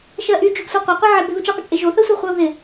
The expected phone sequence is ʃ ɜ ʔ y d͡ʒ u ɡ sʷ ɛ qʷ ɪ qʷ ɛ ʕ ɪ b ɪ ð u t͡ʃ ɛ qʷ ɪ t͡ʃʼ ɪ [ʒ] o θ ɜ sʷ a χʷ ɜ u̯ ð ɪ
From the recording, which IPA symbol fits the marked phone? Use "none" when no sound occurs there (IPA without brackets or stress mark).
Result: ʒ